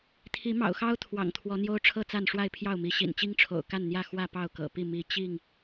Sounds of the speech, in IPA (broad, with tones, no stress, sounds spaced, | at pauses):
t̪ʰ i˨˦ m ɑ̰˨˩ ʊ̯ x ɑ˦ ʊ̯ t̪ʰ w ɑ̰˨˩ ŋ t̪ʰ w ɔ˨˦ n̪ j o˦ ʊ̯ ʈ͡ʂʰ ɤ˥˨ t͡s a˥˨ n ʂ w a˥˨ ɪ̯ pʰ j ɑ˥˨ ʊ̯ m i˨˦ ɕ ḭ˨˩ n t͡ɕ i˦ ŋ ʈ͡ʂʰ o̰˨˩ ʊ̯ k a˥˨ n n̪ j ä˥˨ x w ä˥˨ p ɑ˥˨ ʊ̯ k ɤ̰˨˩ p i˥˨ m i˨˦ t͡ɕ i˥˨ ŋ